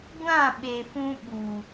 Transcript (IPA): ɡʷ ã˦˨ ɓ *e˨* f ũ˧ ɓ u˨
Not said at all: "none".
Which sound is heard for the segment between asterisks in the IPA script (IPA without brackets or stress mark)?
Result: e˨